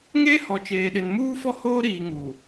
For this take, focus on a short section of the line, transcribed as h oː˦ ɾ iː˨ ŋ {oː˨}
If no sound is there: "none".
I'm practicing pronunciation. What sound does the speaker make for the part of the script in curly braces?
uː˨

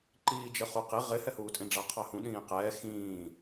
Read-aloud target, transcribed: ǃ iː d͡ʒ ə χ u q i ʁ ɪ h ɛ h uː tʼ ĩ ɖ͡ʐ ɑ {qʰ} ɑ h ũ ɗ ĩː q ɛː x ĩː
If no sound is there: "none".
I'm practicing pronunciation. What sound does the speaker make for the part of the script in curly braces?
qʰ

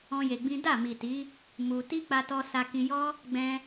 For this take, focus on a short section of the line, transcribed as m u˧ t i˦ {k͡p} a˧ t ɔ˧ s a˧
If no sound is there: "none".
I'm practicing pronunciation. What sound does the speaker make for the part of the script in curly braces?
k͡p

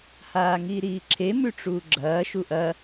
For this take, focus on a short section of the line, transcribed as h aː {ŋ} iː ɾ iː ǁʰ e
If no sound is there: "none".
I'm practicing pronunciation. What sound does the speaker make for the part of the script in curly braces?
ŋ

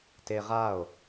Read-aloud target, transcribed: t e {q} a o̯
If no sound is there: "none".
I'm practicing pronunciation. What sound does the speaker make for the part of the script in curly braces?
ʁ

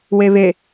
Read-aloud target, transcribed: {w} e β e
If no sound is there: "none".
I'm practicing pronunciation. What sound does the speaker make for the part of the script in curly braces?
w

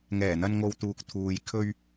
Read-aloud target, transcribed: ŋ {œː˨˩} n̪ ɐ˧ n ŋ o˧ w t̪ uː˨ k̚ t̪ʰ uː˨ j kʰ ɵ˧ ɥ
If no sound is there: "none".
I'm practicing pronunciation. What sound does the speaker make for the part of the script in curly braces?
ɛː˨˩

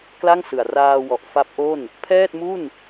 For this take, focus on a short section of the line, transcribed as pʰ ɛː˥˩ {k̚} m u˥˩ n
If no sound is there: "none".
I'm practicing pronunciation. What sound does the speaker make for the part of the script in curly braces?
t̚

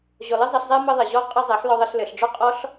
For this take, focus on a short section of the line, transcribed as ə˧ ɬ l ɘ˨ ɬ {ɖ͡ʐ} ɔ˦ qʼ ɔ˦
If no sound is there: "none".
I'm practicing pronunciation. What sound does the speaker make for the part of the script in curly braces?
ɖ͡ʐ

